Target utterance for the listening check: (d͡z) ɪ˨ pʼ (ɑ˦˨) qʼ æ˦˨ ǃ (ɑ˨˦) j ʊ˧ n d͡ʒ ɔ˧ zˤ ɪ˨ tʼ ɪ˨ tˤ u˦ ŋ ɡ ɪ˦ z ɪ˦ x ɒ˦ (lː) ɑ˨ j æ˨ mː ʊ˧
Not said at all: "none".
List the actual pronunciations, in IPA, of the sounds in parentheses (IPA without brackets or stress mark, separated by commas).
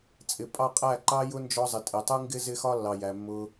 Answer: t͡sʼ, ɑ˦˨, ɑ˧, lː